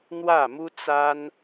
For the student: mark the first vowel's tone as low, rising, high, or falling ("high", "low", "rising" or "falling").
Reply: falling